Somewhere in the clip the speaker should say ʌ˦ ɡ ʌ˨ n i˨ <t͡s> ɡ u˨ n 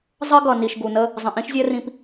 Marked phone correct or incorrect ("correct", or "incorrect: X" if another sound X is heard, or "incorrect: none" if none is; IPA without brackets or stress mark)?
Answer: incorrect: ʃ